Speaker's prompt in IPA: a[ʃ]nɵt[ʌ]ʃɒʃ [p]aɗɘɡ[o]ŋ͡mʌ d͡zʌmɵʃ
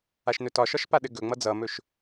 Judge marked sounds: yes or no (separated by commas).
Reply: yes, no, yes, no